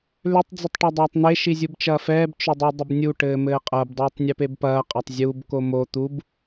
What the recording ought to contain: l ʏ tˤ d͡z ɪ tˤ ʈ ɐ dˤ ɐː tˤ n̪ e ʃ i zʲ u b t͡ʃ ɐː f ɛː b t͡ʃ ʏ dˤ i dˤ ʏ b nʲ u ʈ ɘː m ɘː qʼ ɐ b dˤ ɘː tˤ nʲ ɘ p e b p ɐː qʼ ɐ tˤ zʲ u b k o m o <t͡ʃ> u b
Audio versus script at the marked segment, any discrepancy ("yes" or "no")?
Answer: yes